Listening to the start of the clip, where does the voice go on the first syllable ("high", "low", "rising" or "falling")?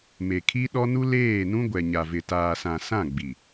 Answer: low